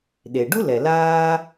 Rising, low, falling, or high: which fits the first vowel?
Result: low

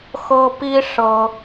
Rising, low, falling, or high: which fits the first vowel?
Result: high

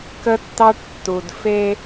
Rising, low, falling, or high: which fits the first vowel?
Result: high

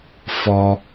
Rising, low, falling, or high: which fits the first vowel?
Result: high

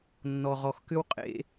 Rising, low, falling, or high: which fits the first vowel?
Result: low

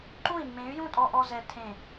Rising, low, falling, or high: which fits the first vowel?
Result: falling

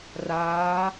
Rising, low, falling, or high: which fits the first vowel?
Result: rising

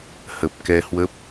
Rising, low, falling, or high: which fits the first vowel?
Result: low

